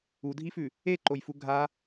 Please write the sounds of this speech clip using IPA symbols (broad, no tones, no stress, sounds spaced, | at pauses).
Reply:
u dʱ i f ʉ | e ǃ o j f u ɡʱ a